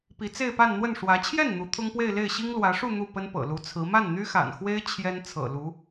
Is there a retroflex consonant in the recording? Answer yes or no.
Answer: yes